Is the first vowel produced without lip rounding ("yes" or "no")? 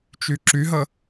no